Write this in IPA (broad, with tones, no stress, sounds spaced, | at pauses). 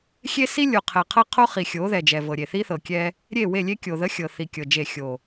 xʲ e˦ s i˦ lʲ o˨ qʰ ɛ˨ qʰ ɤ˦ qʰ o˦ χ i˨ xʲ o˨˦ ð ɛ˨ d͡ʒ ɛ˨ v ɤ˨ ɾʲ e˨ θ i˦ θ ɤ˨ kʲ ɛ˦ | ɾʲ e˦˨ w e˦˨ lʲ e˦ kʲ o˨ ð ə˦ xʲ ɤ˨ θ i˨ kʲ ɤ˨ d͡ʒ e˦˨ xʲ o˨